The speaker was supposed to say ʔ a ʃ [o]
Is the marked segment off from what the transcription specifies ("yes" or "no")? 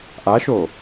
no